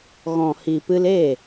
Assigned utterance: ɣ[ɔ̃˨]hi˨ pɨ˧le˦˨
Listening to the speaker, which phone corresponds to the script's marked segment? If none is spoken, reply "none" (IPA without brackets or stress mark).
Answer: ɔ̃˨